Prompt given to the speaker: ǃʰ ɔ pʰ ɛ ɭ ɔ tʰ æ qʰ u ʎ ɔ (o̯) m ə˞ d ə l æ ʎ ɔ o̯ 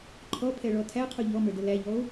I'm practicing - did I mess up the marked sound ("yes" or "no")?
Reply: yes